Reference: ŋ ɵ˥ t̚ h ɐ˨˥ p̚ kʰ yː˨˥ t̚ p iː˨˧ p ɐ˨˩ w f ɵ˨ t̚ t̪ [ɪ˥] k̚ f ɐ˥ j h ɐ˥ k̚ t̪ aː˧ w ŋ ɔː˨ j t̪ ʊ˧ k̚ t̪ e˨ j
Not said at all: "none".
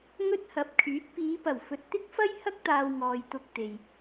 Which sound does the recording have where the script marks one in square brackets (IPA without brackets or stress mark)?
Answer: ɪ˥